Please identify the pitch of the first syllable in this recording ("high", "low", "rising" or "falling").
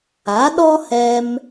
rising